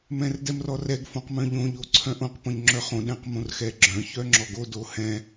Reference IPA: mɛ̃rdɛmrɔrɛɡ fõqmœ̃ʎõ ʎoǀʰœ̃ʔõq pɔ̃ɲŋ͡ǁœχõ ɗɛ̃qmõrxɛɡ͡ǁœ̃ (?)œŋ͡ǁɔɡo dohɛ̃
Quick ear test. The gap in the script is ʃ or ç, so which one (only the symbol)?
ç